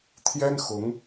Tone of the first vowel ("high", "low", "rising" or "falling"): high